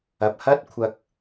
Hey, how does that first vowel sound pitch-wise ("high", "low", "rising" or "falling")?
low